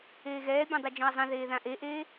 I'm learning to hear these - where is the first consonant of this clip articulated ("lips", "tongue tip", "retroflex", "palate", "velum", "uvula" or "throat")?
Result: velum